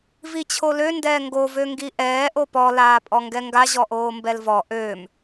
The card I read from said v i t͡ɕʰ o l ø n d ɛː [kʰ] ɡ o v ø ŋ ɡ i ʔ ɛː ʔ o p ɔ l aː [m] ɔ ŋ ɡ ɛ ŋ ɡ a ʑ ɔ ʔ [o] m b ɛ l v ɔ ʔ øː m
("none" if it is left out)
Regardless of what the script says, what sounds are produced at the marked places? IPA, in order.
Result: ŋ, pʼ, oː

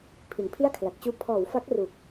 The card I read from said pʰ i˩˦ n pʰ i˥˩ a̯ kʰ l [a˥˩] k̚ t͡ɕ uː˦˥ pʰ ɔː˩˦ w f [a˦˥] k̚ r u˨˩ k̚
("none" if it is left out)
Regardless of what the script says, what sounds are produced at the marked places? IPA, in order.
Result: a˨˩, a˦˥

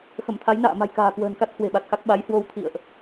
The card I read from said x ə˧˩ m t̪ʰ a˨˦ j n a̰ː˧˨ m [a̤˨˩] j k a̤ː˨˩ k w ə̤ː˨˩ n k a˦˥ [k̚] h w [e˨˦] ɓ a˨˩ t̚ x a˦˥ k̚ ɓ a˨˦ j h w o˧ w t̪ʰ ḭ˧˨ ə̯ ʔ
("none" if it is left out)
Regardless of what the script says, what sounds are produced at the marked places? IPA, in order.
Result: a̤˨˩, t̚, e̤˨˩

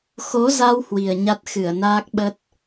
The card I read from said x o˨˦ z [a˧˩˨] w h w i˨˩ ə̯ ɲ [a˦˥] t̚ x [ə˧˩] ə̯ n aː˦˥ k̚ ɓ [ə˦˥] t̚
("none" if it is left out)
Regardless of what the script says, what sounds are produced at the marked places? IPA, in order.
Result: a˧, a˦˥, ɨ˧˩, ə˦˥

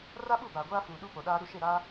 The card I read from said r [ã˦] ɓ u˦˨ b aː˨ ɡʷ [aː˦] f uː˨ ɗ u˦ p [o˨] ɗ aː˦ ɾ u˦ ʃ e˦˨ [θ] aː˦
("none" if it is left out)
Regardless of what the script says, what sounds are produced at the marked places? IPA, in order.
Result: a˦, aː˦, o˨, ɾ

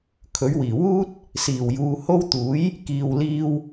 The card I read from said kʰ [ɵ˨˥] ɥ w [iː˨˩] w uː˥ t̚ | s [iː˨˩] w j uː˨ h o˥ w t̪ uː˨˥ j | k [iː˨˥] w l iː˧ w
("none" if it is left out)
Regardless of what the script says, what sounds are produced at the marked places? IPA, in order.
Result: ɵ˨˥, iː˨˩, iː˨˩, iː˨

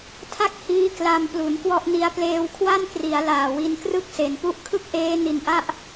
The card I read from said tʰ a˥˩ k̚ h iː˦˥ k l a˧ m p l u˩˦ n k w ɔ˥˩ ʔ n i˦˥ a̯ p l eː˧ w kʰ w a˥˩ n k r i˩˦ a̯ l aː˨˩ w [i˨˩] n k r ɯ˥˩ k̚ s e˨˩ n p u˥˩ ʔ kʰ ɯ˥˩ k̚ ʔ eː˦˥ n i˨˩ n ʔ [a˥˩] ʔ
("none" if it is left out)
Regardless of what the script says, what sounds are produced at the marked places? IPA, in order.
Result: i˧, a˥˩

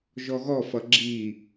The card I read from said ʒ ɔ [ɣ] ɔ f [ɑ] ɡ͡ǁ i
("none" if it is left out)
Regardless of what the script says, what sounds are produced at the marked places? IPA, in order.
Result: ɣ, ʌ

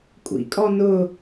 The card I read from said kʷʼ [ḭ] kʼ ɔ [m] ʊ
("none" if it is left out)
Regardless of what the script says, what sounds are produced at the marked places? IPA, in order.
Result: ḭ, n

